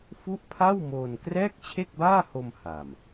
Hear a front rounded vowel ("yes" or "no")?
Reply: no